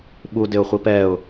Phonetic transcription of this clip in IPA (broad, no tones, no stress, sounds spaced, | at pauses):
ɓ u d ɪ ʊ̯ χʷ i p ɛ ʊ̯